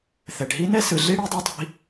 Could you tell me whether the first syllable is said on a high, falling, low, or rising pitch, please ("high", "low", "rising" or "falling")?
low